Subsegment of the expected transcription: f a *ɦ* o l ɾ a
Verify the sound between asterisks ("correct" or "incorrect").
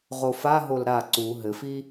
correct